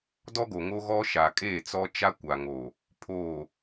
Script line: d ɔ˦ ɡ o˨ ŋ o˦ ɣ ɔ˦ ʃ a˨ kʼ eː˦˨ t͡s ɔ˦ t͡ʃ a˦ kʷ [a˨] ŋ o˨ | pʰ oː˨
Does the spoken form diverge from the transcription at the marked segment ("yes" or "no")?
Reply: no